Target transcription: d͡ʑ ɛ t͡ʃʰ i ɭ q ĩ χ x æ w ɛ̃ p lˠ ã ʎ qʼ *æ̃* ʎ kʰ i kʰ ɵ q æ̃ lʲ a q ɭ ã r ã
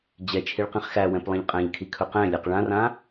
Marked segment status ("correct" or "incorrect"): correct